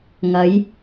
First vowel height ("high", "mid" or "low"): low